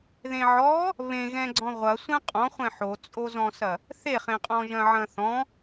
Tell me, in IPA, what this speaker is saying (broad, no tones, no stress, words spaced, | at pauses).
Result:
ðẽʕɔ | βẽɣɛ̃ɡ͡ǀɔ̃ ʁʷɐsʷɛ̃ qʼɔ̃χʷɛ̃ ħot͡sʼozɔ̃sɐ | θeχẽqʼɔ̃ʒɐ̃ ʕɐ̃θɔ̃